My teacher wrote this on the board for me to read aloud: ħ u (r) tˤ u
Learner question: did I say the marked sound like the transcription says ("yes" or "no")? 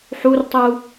yes